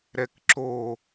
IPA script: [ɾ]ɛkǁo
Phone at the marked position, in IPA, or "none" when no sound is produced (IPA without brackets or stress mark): ɾ